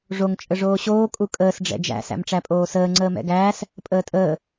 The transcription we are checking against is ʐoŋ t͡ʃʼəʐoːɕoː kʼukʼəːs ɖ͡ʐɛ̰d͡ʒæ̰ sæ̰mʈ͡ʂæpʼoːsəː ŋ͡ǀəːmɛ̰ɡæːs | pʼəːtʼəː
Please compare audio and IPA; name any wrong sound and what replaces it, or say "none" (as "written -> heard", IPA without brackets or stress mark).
none